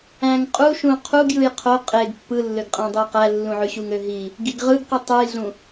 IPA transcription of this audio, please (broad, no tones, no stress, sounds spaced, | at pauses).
æ̃ ŋ qʼ u ʃ ũ qʰ u ɡ j ɯ j qʰ o qʼ e ɡ pː ɯ lː ø ɡ qʼ æ̃ dˤ e q æ lː ũ ʕ y ɕ u ŋ ø ɦ i | ɡ i ɡ ʁ ɯ ɡ q i tˤ ɯ j ɮ ũ